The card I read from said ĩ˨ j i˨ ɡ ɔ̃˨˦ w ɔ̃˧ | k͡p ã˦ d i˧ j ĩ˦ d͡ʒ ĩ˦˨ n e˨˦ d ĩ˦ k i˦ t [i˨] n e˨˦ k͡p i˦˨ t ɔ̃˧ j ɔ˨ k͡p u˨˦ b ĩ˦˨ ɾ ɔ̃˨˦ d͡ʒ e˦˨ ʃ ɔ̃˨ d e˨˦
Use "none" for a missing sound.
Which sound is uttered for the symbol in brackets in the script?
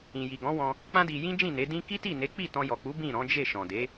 i˦˨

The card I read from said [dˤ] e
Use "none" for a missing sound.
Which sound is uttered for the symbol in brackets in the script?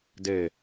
d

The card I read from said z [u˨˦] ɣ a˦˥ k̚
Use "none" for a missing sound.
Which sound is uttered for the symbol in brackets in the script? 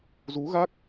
u˨˦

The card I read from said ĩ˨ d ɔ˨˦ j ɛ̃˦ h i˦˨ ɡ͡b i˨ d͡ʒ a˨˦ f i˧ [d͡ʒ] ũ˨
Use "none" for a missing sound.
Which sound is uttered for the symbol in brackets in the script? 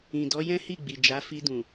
d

